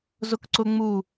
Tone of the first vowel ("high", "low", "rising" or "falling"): high